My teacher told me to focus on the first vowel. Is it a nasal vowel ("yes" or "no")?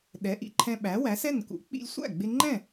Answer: no